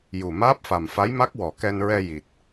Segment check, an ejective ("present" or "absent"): absent